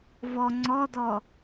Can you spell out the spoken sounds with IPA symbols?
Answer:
v ɔ ŋ͡ǀ ɔ d ɔ

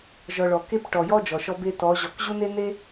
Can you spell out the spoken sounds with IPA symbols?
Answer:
ʒ ɔ˨ ɭ ɔ˨ k e˦ p ʈ ɔ˨ j ɔ˦ d͡ʒ ɔ˨ ʃ ɔ˦ b e˦ t ɔ˨˦ ʑ ɔ˨ k ʑ u˦ n e˦ n e˦

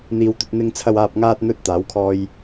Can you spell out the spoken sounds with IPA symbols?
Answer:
n̪ iː˨ w t̪ ɵ˧ t̚ n̪ ɪ˧ ŋ t͡sʰ ɐ˨ w aː˨ p̚ ŋ aː˧ t̚ n̪ ɵ˧ t̚ t̪ aː˨˥ w kʰ ɔː˥ j

